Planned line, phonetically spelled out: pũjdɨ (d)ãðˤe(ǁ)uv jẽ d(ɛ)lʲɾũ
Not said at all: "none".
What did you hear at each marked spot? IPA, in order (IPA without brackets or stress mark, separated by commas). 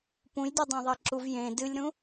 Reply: dˤ, ǁ, ɨ